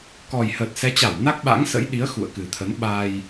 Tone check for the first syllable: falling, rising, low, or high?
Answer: low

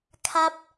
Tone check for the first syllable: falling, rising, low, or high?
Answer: high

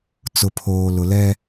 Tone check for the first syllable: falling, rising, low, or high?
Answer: low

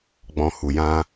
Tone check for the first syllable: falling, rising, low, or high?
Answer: low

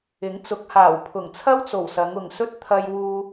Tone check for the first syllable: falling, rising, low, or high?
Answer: rising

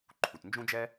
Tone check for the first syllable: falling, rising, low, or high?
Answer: low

